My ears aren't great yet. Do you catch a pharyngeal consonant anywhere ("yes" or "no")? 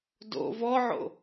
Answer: yes